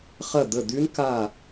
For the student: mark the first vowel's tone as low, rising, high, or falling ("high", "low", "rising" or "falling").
falling